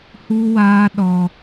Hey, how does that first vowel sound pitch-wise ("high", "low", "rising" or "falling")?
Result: high